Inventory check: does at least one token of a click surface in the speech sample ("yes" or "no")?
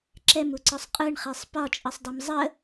yes